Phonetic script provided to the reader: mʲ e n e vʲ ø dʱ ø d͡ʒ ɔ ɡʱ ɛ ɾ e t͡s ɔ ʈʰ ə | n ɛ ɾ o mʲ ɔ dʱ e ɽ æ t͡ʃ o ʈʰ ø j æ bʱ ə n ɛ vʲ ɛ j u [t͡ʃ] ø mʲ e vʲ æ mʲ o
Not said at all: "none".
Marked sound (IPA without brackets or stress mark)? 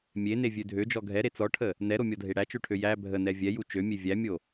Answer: t͡ʃ